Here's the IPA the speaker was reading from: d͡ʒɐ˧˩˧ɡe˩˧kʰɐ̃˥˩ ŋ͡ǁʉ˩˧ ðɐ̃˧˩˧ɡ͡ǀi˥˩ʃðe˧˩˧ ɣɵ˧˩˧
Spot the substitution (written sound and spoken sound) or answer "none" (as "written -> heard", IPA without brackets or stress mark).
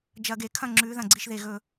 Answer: none